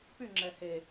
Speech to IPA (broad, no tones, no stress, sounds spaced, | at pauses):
p y ŋ͡ǁ ɛ h e